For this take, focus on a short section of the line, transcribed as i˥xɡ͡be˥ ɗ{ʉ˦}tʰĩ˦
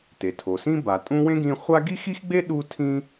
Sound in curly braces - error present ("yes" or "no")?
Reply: yes